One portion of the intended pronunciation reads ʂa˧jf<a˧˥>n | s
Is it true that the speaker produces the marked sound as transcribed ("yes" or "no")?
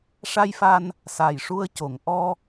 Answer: no